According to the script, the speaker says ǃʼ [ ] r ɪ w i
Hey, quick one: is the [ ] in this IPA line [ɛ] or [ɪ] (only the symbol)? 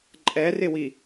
ɛ